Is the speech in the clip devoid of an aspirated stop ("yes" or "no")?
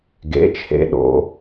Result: no